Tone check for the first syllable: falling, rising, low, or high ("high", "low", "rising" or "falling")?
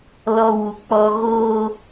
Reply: low